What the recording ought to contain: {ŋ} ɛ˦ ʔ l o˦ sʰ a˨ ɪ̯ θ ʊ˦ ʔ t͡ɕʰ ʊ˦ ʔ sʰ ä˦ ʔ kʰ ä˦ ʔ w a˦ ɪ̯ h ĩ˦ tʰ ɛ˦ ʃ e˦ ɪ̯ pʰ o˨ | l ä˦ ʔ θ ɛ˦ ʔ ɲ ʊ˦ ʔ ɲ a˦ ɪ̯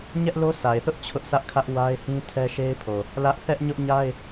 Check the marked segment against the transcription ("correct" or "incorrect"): incorrect